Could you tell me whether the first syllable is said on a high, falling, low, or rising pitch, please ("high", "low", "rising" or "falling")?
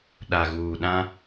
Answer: low